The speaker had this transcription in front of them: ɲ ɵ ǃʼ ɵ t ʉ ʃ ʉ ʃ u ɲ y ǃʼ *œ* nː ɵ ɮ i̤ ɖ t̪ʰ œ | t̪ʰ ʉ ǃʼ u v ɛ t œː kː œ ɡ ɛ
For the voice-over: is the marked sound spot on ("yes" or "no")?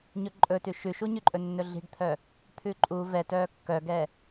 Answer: no